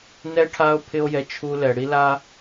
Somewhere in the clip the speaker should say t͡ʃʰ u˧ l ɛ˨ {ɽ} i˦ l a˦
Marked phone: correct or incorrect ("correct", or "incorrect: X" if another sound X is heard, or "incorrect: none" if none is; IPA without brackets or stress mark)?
correct